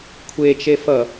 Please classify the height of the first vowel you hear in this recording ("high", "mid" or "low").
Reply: mid